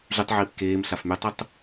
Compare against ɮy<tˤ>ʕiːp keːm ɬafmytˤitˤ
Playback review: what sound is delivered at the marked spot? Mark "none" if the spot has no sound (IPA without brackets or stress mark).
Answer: tˤ